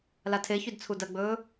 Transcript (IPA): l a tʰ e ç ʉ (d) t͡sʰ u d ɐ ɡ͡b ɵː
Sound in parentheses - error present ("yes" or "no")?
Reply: no